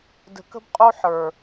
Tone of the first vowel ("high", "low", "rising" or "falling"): low